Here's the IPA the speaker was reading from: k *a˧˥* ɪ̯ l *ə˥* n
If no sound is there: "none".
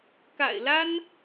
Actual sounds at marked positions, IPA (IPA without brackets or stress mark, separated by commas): a̰˨˩, a˥